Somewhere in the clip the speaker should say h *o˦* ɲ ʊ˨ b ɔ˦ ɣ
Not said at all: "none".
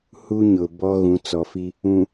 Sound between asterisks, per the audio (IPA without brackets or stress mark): u˦